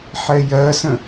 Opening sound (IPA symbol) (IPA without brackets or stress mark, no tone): ħ